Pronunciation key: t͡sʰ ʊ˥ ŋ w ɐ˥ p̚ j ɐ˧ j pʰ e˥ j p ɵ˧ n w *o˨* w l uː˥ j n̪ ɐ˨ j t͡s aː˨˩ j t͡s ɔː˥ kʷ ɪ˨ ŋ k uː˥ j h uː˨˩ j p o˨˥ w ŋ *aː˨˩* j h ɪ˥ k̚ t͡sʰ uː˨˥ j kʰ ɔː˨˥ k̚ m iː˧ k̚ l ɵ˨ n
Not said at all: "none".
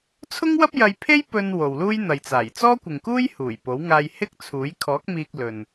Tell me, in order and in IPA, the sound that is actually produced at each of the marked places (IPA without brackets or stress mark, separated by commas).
o˨, aː˧